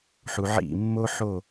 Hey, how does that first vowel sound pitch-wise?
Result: low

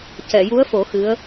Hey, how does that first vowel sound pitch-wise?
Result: low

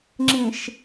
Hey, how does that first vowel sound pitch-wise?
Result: low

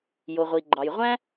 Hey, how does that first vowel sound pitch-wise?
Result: low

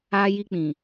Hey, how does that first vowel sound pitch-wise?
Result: high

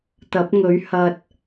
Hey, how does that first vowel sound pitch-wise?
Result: rising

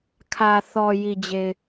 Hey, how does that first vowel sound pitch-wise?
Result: low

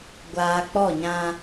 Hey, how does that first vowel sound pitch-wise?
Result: low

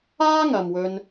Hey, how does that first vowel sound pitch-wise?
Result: high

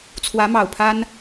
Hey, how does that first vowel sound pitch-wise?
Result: rising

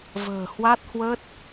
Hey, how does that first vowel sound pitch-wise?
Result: low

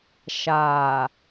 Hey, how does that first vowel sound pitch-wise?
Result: low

